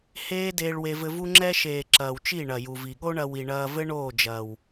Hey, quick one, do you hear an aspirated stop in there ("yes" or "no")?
no